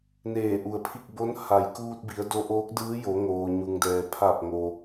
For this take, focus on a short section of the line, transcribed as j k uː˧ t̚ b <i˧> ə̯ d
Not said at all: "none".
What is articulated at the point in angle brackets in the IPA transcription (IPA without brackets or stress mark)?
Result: i˩˧